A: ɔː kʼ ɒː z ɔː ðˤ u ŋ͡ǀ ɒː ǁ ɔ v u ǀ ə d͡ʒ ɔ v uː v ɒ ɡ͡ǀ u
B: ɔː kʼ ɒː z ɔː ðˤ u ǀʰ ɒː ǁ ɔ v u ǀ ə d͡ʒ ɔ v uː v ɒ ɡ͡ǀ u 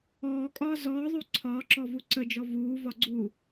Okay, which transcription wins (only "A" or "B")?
B